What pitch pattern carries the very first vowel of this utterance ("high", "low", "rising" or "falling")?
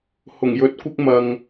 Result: low